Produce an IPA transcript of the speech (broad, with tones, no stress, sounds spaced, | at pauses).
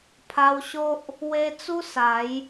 pʰ a˧ w ɕ o˦ ʔ | w e˧ t͡s u˦ s a˨˦ j